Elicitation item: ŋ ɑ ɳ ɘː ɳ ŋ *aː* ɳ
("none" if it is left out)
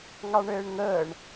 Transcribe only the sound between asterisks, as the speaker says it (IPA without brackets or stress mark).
əː